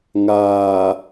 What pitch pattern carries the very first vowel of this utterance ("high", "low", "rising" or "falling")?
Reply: low